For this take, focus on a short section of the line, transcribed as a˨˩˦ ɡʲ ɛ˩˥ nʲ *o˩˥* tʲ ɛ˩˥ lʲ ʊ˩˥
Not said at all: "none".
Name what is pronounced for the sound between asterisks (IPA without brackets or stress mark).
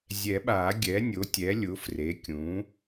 o˩˥